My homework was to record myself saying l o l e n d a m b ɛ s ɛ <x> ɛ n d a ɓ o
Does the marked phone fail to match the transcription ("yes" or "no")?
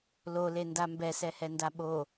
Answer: yes